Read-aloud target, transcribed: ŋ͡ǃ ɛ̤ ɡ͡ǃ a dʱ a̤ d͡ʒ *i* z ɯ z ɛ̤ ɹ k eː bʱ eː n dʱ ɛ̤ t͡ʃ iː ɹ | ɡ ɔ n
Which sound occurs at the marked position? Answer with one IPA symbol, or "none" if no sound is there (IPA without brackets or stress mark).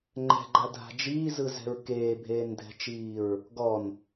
iː